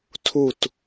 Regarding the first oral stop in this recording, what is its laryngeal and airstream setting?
aspirated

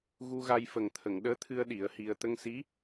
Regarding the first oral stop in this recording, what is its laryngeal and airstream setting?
aspirated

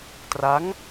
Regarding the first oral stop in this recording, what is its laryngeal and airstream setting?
plain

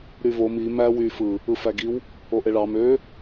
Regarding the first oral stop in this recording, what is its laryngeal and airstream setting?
plain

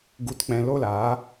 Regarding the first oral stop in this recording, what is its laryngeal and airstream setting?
plain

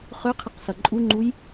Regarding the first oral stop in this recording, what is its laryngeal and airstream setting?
aspirated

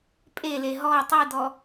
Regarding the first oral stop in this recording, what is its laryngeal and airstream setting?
ejective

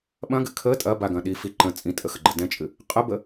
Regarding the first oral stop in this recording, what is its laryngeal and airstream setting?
implosive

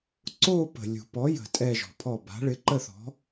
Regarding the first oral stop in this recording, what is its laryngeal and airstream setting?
click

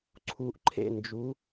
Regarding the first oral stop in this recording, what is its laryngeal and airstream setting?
click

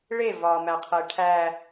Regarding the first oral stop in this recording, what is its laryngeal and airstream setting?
aspirated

